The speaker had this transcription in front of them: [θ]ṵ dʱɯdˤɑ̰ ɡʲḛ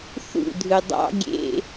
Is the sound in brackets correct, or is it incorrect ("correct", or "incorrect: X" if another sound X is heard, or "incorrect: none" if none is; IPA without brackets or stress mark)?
correct